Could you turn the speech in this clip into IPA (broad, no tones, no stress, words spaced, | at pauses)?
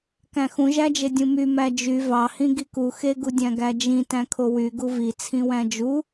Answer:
kæ̃xũʒæd͡ʒe dʲũmy mæd͡ʒy vɑhĩ ɡiku xeɡudʲæ̃ ɡæd͡ʒĩ tæ̃kʰowy ɡuvi t͡sʰĩwæ̃d͡ʒu